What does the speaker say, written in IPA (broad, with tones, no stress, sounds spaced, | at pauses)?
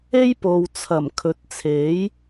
e˥ j p o˨ w t͡sʰ ɐ˨˩ m kʰ ɵ˨˥ t̚ t͡sʰ e˨˥ j